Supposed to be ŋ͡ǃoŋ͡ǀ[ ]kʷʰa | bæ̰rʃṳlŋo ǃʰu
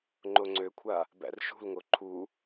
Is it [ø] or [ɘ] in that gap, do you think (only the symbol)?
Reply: ø